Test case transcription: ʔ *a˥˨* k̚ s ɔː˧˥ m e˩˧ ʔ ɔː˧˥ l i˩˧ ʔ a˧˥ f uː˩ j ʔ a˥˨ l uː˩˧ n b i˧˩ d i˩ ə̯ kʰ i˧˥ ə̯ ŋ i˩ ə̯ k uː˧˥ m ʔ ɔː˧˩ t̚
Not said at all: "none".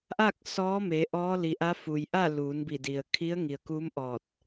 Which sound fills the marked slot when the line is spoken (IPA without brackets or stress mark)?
a˥˨